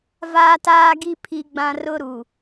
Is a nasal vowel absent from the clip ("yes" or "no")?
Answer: no